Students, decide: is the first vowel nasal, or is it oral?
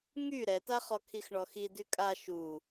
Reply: oral